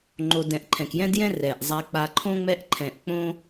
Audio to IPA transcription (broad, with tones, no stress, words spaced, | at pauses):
ŋ͡ǃo˧dɛ̃˧ʔ ǃʰɛ̃˩kjɛ̃˥djɛ̃˥ rɛ˩ʔzˤa˧k͡pa˧ ǃʰõ˥ŋ͡mɛ˥ʔ ǃʰɛ̃˧ʔ k͡põ˥